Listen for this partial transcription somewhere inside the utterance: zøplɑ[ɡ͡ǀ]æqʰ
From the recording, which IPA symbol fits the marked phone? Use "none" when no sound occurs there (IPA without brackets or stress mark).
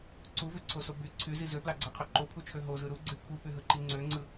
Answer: ɡ͡ǀ